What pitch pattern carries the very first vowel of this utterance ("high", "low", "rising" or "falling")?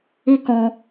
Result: high